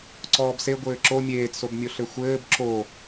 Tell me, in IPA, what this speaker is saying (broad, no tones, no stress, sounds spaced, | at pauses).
ǀ ɔː b s e ɡʷ ɘː ǁ o mʲ eː t s o b mʲ o ɬ ɘ xʷ ɘː b ǁ o